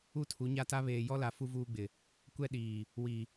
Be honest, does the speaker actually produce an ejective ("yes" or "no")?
no